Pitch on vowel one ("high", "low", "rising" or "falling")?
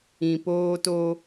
low